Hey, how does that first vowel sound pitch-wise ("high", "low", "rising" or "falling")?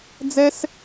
high